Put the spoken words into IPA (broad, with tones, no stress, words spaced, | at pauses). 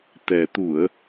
t̪ɛ˨˩t̪u˧˩˨ə̯